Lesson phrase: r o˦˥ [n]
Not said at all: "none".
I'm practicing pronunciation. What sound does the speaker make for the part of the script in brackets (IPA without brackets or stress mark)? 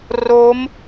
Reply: m